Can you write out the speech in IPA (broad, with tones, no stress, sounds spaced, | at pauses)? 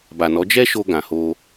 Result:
b a˨ n ɔ˨˦ d͡ʒ ɛ˦ ʃ o˧ ɡ ã˨ h o˧